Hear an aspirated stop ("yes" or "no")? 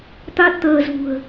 no